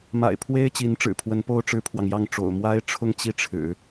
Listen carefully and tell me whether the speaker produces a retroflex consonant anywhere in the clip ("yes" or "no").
yes